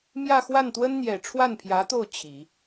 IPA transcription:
m j ä˥˧ x w a˥˩ n t̪ w ə˥ n n̪ j ɛ˨˩ ʈ͡ʂʰ w a˥˩ n pʰ j ä˧˥ t̪ o˥˩ ʊ̯ t͡ɕʰ i˨˩˦

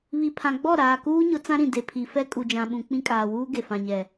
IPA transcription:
β i˨ pʰ ã˨ ɡ͡b ɔ˦˨ ɾ aː˨ k uː˦ ɲ ʊ˨˦ t͡s ã˦ ɾ ĩ˨ d e˨ pʰ i˨ f ɛ˦ kʼ u˨ d͡ʒ ã˨ ɓ ũ˨ k͡p ĩ˦ kʼ aː˨ w uː˦ ɡ e˨ f ã˨ ɲ ɛ˨

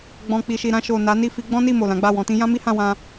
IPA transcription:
ɡ͡b ɔ̃˨ k͡p i˨ ʃ i˨ ɾ ã˧ ʃ o˨ n a˨˦ n i˦˨ f i˧ ɡ͡b ɔ̃˦ n i˦˨ m o˨ l ã˨˦ ɡ͡b a˦˨ w ɔ̃˧ t ĩ˦ j ã˦ m i˦ h ã˧ w ã˧

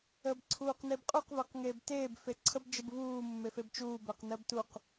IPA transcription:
əː b ǀʰ uː q n e b qʼ u q v əː q ŋ eː b t eː b f e ǀʰ ə b d͡ʒ ə b v uː mː e f e b t͡ʃ uː b ɜ q n ɜ b t u q

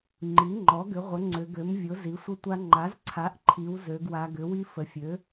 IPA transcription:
ŋ͡ǃ i˩˥ ŋ͡ǃ ɔ˩˥ ɡ ʏ˩˥ ʁʷ ə˩˥ ŋ͡ǀ ʏ˩˧ ɡ ø˩˥ m vʲ ʊ˩˥ z i˩˥ sʷ ə˦ tʷ a˦ ŋ͡ǃ a˩˥ z ǀʰ a˩˥ ʔ ǃʰ i˩˧ w z ø˩˧ ɡ w a˩˧ ɡ ʏ˩˥ w i˦ f ə˩˧ fʲ ø˩˥

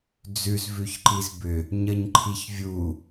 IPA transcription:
d͡z ʉ z v ʉ ç ǃ i z b ʏ | ɲ ə ɲ ǃʰ i ç vʲ u

